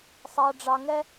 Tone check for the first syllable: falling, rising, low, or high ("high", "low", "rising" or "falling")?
low